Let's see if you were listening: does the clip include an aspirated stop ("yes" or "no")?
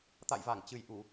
no